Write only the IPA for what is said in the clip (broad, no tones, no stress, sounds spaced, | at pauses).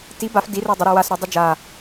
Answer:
t i b a f d i r ə˞ dˤ ə ɾ ʉ w a s ɾ œ dˤ ʉ d͡ʒ a